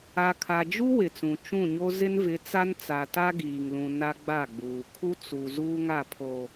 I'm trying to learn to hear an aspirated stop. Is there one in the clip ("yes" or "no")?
yes